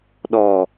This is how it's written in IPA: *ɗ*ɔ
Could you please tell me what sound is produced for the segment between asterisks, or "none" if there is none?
ɗ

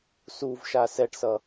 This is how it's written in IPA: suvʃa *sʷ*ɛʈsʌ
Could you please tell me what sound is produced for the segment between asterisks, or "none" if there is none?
s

